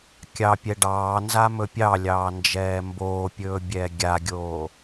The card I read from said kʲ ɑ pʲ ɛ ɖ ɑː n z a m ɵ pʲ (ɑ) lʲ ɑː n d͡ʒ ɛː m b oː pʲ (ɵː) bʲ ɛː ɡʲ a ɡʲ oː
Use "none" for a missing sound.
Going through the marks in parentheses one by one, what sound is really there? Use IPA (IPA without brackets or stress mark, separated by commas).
ɑ, ɵː